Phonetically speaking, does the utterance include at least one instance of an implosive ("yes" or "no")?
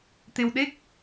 yes